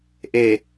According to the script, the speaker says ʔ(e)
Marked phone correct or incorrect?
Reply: correct